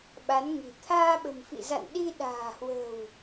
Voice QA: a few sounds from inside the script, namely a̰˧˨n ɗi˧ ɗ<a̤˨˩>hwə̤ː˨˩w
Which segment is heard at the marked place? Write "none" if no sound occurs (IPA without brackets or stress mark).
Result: a̤ː˨˩